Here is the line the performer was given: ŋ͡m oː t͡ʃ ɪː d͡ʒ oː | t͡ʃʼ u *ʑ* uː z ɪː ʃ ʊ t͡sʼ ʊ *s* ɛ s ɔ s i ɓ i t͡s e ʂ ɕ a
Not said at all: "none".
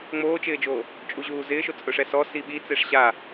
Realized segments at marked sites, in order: ʑ, ʂ

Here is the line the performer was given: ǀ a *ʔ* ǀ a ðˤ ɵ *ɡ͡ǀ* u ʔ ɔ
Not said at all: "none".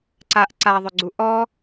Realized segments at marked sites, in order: ʔ, ɡ͡ǀ

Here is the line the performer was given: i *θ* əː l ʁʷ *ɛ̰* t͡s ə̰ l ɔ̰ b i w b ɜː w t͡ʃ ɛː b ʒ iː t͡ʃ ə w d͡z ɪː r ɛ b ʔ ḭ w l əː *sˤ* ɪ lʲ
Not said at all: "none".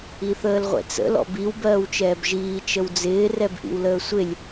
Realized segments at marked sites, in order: θ, ɛ̰, sʷ

